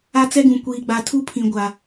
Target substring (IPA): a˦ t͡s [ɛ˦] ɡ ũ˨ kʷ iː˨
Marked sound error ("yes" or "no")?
no